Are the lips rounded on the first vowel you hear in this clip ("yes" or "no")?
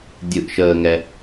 no